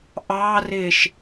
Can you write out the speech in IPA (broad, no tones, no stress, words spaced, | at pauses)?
ʔɑːrɪːʃ